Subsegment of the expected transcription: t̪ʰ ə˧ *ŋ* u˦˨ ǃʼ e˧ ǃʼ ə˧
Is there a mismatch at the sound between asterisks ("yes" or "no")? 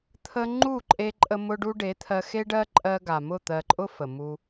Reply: yes